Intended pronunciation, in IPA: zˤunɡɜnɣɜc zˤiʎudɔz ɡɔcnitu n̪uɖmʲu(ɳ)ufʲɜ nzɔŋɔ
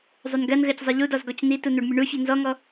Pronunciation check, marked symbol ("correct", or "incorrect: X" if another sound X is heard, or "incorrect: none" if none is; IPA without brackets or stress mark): correct